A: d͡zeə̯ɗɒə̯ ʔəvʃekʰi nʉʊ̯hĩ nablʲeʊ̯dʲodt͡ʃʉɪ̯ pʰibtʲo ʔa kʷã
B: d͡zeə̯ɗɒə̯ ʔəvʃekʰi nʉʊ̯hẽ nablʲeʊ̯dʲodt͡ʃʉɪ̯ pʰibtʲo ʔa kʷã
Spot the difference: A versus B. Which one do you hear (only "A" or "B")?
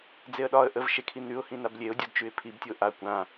A